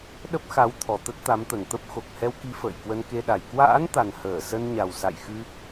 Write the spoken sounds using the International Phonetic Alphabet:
ɗə˦˥p̚xa˨˦wt̪ʰɔ˨˩ t̪ə˦˥t̚t̪a˨˦mt̪ə˨˩nt̪ə˦˥p̚ xo˨˩k̚hɛ˧wki˨˦ fə̰ː˧˨jkwə˧nke˧ɗa˨˩j kwa̰ː˧˥nt̪a˨˩n həː˧˩sə˧nɲa˨˩w sa̰˧˨jxɨ˧

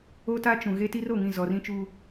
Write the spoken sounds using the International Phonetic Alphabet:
o˦ta˦t͡ʃũ˨ ɣe˦ti˦ro˨ŋĩ˦˨ zɔ˨rĩ˦t͡ʃu˦

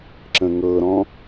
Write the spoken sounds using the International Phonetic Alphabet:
ǁə̃ŋɤɾɔ̃

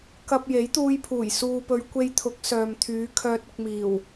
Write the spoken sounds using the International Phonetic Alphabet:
kɐ˧p̚ je˨˥jt̪uː˧jpʰuː˨˩j suː˨pɵ˨˧ɥ kʷe˧jt̪ʰʊ˨˥k̚ sœː˨mt̪ʰyː˨˧ kʰœː˨t̚ʊ˨k̚miː˨˩w

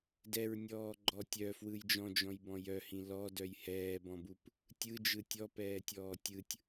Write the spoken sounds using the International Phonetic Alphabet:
dɛɹnʲɔːɡ͡ǃɔ tʲœfwɯj d͡ʒɔ̃d͡ʒɔ̃jbɔ̃ jœhĩ lɔdœj hɛːbɔ̃bup | tʲɯd͡ʒɯ tʲɔpɛːtʲɔː tʲɯtʲ

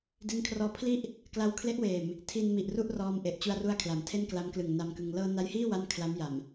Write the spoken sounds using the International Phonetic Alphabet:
di˦˥nkʰrɔː˧pʰli˥˩ʔ | kla˧wkʰle˦˥ʔweː˨˩m | tʰi˧nmi˨˩ʔ ru˥˩ʔrɔː˧m ʔe˨˩ʔt͡ɕu˧a̯ru˧a̯kʰla˩˦m tʰe˥˩nkla˦˥mklɯ˨˩ŋ na˧mkɯ˧ŋ lɤː˧na˦˥jhiː˥˩ wa˥˩nkʰla˦˥mja˨˩m

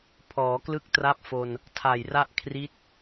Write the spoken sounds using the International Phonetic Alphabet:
pʰɔː˩˦ klɯ˥˩k̚ tra˥˩p̚fo˧n | tʰa˨˩jra˥˩ʔ kʰri˦˥t̚

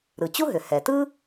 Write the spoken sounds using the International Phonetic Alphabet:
ɾɯ˩ t͡ɕu˥ɦʏ˩ hɛ˩tɯ˥

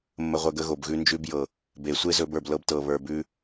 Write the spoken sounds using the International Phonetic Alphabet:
mːə˧ʁʷə˧ɡə˧ ɣo˨bɣʉ˧nd͡ʒʉ˧bjɤ˨ | be˨sʷe˦zɵ˧b ə˞˨blɤ˧btɤ˨βə˞˨ bʉ˧

